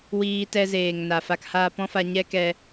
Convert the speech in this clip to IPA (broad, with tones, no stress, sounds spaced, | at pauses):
w iː˧ t ɛ˧ z eː˨ ŋ n a˨ f a˧ k h aː˧ p ɔ̃˦ f a˧ ɲ ɛ˦ k ɛ˧